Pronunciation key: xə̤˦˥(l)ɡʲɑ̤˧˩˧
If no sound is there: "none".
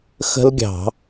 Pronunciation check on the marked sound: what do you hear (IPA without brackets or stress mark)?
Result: l